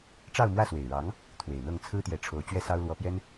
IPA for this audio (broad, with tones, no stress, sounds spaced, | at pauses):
ʈ͡ʂ ɑ˥˧ ʊ̯ m w ä˥˩ s w e˨˩ ɪ̯ ɻ ɑ˧˥ ŋ | t̪ʰ w e˨˩ ɪ̯ n̪ ɤ˥˩ ŋ t͡sʰ ɹ̩˥ t̪ j ɛ˧˥ ʈ͡ʂʰ o˧˥ ʊ̯ t͡ɕ ɥ ɛ˥ s ɑ˥ ʊ̯ l w ɔ˧˥ p j ɛ˥ n